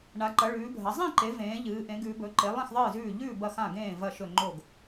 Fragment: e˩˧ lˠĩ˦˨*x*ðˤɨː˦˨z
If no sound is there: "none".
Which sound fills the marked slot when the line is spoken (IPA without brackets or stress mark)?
x